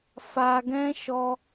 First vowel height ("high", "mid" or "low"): low